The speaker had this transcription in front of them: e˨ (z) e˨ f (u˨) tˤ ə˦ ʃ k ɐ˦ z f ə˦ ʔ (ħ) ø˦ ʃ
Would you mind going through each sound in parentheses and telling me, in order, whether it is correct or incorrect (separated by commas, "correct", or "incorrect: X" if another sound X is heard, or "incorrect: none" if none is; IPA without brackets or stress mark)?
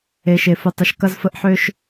incorrect: ʃ, correct, correct